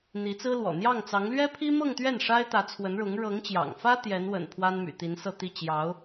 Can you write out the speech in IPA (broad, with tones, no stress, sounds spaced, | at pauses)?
n̪ i˧˥ t͡s ɹ̩˥ l w ɔ̰˨˩ n̪ j ɑ˥˩ ŋ t͡s ɑ˧˥ ŋ l ɥ ɛ˥ pʰ i˥ m ɤ˥˧ ŋ t̪ ɥ ɛ˥˩ n ʂ a˥ ɪ̯ t̪ ä˧˥ t͡sʰ w ə˧˥ n ɻ ʊ˧˥ ŋ ɻ ɤ˧˥ ŋ t͡ɕ j ɑ̰˨˩ ŋ f ä˥ t̪ j ɛ˧˥ n w ə̰˨˩ n pʰ w a˥ n m y̰˨˩ t̪ i˧˥ n s ɤ˥˧ t̪ i˥˩ t͡ɕ j ɑ˧˥ ʊ̯